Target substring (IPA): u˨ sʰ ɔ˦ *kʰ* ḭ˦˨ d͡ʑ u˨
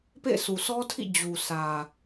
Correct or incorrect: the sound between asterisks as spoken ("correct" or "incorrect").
incorrect